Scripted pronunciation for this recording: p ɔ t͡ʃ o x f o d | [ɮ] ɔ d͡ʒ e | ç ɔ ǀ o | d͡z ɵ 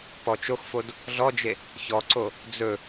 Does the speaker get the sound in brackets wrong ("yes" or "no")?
no